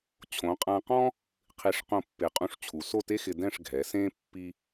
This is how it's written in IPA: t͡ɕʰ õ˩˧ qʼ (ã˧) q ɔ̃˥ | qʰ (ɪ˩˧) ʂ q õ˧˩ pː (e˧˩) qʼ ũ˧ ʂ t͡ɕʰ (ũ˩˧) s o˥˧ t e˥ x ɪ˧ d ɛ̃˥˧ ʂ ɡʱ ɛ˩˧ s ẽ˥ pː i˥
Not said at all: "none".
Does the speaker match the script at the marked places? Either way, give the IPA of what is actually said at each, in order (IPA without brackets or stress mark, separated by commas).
ã˧, i˩˧, e˩˧, u˩˧